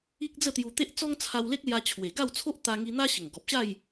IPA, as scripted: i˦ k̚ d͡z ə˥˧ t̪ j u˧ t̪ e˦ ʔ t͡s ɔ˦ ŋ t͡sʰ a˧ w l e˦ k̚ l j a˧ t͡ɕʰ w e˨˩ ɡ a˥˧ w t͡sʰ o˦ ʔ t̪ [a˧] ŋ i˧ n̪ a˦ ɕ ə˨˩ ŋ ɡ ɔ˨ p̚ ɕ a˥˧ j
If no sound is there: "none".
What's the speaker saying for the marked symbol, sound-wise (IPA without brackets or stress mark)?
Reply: a˧